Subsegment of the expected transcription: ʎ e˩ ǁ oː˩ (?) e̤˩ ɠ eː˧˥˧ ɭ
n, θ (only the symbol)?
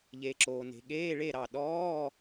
n